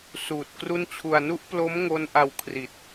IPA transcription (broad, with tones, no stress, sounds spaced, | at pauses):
s uː˨˩ t̚ k r u˥˩ n t͡ɕʰ u˧ a̯ n u˦˥ ʔ p l o˦˥ m ŋ o˦˥ n ʔ a˧ w kʰ r i˨˩ t̚